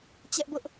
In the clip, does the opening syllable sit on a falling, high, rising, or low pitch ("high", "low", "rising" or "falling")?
high